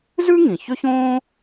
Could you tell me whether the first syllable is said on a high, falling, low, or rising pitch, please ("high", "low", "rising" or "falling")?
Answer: high